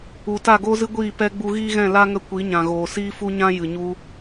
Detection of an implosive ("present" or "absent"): absent